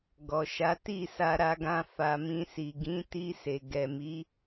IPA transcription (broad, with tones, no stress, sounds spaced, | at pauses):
ɡ ɔ˨ ʃ a˨˦ t i˦˨ s a˧ ɾ a˧ ɡ ã˧ f a˧ m ĩ˧ s i˨ ɡ ĩ˨˦ t i˧ s e˨ ɡ ɛ˨ m i˨˦